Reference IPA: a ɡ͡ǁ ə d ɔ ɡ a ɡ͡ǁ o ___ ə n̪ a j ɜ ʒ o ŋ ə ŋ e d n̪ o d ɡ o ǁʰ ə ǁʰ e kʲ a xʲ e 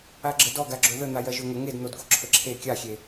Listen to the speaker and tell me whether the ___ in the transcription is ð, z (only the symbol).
ð